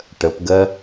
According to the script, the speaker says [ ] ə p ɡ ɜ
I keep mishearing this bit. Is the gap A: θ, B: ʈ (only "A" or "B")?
B